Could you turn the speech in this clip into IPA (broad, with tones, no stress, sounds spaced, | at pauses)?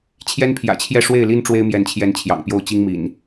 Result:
t͡ɕʰ j ɛ˦ n pʰ j ä̰˨˩ t͡ɕʰ j ɛ˥˨ ʂ w e˥˨ ɪ̯ l i˦ n ʈ͡ʂ w e˦ ɪ̯ m j ɛ˨˦ n t͡ɕʰ j ɛ˨˦ n t͡ɕʰ j ɑ̰˨˩ ŋ p j o˥˨ ʊ̯ t͡ɕ i˦ ŋ m ḭ˨˩ n